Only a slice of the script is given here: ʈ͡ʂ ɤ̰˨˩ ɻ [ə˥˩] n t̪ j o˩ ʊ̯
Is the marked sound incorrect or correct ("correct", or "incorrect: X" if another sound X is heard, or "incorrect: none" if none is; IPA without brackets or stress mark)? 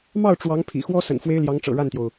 incorrect: a˥˩